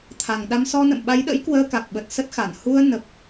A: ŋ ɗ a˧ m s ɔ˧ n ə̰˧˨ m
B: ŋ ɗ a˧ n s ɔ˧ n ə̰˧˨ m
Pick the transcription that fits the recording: A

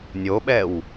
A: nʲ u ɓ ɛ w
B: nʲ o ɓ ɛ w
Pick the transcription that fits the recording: B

